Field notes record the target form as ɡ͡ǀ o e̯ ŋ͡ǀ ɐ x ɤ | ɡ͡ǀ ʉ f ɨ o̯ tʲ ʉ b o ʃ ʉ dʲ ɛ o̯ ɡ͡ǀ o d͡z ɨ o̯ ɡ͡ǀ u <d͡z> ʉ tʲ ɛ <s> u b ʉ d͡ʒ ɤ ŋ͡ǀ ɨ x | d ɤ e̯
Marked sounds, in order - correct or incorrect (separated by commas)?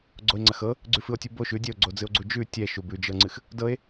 incorrect, incorrect